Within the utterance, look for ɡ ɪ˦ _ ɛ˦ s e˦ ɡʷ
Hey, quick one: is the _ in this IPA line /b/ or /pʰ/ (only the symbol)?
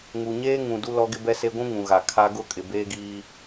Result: b